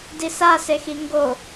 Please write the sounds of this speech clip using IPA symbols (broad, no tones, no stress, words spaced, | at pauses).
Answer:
disasexi ŋɡo